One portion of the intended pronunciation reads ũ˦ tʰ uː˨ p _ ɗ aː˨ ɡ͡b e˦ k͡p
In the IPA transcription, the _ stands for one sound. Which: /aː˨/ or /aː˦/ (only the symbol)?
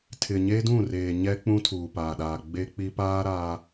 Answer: aː˨